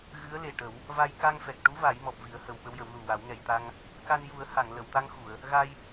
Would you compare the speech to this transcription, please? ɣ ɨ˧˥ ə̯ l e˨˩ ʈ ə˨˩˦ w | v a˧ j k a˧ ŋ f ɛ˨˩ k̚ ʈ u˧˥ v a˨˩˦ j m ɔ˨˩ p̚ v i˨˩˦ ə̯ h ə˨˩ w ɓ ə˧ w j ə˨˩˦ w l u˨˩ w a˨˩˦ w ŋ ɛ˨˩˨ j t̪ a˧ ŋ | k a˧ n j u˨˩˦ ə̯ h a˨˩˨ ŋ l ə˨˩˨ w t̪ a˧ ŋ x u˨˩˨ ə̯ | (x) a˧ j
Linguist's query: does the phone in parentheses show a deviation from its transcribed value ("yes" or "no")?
yes